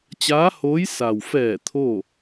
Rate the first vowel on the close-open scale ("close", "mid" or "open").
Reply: open